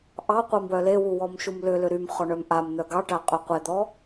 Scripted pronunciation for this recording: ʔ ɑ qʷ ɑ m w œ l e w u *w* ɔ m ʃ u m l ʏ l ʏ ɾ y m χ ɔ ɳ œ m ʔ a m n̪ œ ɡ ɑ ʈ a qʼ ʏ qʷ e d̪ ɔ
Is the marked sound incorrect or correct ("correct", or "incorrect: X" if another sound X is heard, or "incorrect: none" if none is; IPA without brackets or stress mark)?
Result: correct